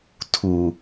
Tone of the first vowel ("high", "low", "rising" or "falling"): low